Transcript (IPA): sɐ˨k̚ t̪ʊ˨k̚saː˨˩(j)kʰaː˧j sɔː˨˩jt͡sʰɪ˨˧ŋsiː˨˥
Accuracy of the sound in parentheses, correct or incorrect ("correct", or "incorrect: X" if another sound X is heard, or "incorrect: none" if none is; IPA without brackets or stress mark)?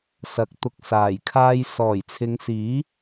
correct